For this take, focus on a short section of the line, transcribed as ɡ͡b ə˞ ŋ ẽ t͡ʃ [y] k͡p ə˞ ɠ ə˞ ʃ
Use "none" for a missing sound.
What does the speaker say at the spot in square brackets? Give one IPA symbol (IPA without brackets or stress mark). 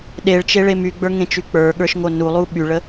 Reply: y